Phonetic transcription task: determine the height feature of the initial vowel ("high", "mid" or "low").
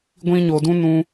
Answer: high